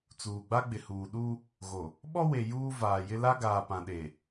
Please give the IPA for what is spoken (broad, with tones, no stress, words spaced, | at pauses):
t͡suː˨ɡ͡ba˦ɡ͡bɪ˨huː˨ ɗu˦ | ɣo˨ | ɓɔ˦ we˨ juː˦ vaː˨jɪ˦ la˦ɡaː˨pã˨ɗe˨